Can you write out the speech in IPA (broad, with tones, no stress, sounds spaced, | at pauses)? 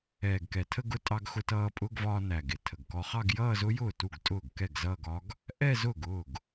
ɛː˨˩ ɡ k ɛ˨˩ tʰ ə˥˧ ɡ ʊ˥˧ tʼ ɑ˧ ɡ x ʊ˧ t ʌː˧ pʼ ʊ˧˥˧ ɡ v ɒː˧ n æ˨˩ ɡ ɪ˥˩ tʰ ə˨˩ ɡ k ɔ˧ χ ɑ˥˧ ɡ j ʌː˥˧ z ʊ˦˥ j ʊː˥˩ t u˥˩ ɡ tʼ ʊː˥˩ ɡ k ɛ˥˩ ɡ z ʌː˥˧ ɡ ɒ˦˥ ɡ | ʔ ɛ˥˧ z ʊː˥˩ ɡ ʊː˥˩ ɡ